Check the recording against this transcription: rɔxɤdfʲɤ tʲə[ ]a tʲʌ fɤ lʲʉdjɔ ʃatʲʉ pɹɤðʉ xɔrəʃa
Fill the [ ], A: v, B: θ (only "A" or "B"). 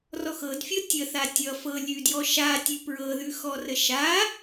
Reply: B